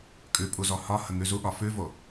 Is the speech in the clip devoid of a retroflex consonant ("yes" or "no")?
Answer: yes